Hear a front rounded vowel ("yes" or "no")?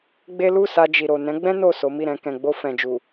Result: no